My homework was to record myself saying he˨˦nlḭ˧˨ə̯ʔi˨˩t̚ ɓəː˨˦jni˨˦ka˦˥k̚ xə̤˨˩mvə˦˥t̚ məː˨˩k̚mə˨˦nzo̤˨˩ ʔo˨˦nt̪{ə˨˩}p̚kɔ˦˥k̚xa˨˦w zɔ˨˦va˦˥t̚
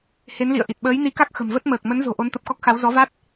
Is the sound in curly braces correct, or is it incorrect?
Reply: correct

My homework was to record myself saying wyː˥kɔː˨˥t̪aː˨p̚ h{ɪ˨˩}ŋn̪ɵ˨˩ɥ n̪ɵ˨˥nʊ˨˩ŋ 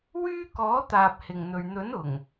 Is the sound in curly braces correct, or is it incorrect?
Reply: correct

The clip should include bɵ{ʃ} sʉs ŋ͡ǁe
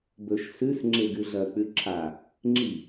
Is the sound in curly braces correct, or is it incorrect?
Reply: correct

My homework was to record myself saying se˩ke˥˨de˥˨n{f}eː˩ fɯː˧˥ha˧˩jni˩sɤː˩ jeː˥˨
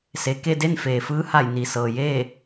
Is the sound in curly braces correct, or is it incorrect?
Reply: correct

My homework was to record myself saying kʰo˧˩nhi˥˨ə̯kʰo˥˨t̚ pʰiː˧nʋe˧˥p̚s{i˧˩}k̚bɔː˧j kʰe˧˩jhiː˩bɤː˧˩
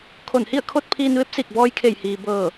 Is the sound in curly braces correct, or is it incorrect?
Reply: correct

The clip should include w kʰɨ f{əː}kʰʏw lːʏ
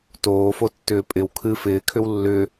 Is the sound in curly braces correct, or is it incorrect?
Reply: incorrect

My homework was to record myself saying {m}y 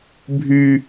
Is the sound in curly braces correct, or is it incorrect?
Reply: incorrect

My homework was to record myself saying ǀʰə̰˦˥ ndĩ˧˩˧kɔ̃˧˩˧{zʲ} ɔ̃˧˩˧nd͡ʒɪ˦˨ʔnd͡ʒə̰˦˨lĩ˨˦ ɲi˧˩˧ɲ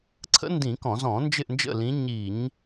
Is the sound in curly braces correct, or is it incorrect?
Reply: incorrect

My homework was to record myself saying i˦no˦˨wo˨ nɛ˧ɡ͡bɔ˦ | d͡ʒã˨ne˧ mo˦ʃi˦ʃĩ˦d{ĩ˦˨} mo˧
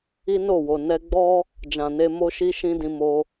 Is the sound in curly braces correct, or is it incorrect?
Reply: incorrect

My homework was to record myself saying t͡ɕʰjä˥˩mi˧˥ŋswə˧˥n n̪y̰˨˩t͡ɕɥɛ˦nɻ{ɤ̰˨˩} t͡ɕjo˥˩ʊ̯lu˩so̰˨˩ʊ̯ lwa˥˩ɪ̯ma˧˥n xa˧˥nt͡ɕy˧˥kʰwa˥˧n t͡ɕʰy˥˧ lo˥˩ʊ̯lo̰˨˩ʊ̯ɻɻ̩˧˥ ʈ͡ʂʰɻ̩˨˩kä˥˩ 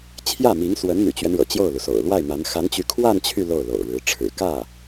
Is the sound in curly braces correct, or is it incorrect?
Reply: correct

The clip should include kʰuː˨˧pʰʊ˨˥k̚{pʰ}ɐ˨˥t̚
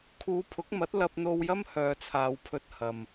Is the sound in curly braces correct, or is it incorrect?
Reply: incorrect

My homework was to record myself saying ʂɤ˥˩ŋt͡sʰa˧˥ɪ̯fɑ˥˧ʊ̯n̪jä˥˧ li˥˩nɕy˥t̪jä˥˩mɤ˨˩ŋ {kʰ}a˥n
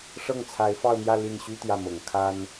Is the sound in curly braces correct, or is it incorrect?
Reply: correct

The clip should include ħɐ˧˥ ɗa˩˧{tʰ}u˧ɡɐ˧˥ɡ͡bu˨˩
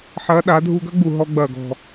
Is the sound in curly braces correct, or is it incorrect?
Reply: incorrect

